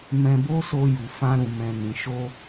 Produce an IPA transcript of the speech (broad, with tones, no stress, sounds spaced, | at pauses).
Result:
m ɛ̃˧ b o˦ s o˧ j u˨ f ã˧ ɾ ũ˨ m ɛ̃˨ n ĩ˨ ʃ o˧